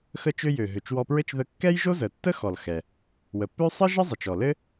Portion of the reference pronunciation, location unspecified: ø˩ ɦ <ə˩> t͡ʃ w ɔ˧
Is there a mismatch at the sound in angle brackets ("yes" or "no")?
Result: yes